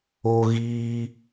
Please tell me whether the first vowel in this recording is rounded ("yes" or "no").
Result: yes